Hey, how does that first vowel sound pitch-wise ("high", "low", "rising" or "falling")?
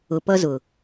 low